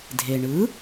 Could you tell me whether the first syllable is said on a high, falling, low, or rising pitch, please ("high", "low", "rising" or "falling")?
low